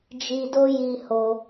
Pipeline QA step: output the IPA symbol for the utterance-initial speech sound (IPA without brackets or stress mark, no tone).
d͡ʒ